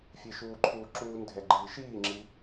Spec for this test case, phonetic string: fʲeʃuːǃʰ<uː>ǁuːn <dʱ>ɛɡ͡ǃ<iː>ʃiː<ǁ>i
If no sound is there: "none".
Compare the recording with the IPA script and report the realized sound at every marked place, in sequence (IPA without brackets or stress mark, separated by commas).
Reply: uː, dʱ, iː, ŋ͡ǁ